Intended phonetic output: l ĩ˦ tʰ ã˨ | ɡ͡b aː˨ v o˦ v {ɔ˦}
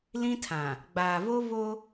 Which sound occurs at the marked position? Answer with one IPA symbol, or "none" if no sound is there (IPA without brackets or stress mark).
o˦